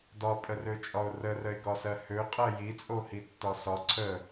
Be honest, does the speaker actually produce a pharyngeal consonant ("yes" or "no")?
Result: no